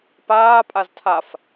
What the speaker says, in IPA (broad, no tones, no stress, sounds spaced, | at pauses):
p aː pʼ a z tʰ a f